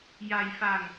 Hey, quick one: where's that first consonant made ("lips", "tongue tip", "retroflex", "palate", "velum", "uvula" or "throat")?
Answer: palate